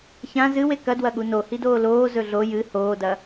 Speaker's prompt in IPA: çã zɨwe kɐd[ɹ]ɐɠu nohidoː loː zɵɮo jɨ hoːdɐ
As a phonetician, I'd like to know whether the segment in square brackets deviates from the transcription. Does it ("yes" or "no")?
yes